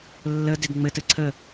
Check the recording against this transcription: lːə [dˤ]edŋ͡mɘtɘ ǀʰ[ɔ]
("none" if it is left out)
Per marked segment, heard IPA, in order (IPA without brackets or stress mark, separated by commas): d, ə